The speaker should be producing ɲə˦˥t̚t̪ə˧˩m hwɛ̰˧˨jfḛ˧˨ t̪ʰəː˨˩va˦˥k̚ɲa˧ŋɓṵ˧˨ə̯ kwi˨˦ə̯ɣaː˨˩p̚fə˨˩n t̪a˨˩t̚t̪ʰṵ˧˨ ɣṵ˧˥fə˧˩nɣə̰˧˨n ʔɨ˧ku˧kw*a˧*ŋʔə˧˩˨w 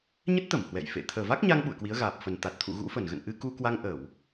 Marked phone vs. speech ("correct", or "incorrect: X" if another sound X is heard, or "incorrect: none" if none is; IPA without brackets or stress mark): correct